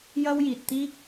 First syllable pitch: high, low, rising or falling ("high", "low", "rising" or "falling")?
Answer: high